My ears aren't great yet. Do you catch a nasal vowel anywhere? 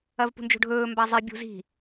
no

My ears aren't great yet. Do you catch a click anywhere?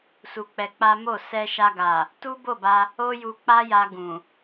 no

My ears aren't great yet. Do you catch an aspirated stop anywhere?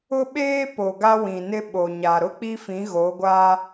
no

